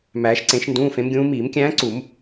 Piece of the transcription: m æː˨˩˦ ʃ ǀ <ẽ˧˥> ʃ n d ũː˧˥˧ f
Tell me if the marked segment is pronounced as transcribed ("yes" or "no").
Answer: no